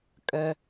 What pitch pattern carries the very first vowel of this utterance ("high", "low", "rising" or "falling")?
low